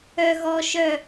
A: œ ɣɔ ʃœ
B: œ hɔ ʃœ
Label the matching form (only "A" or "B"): A